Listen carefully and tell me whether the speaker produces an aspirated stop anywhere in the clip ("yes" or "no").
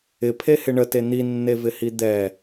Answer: yes